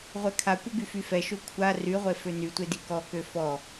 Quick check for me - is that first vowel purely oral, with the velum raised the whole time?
yes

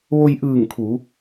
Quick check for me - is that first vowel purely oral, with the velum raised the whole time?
yes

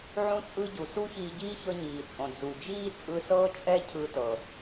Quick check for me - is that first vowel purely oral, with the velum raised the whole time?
no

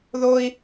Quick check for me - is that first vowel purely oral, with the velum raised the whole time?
yes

